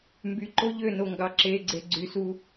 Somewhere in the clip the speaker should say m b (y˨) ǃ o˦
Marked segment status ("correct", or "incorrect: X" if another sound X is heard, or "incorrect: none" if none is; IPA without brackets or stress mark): correct